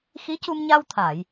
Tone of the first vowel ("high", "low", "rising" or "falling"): rising